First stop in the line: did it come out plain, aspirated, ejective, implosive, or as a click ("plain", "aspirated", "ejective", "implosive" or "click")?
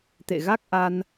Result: plain